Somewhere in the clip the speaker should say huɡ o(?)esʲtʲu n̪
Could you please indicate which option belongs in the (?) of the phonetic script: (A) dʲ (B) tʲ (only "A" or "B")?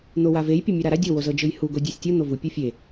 A